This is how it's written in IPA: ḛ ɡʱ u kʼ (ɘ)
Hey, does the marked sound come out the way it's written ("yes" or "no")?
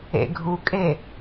no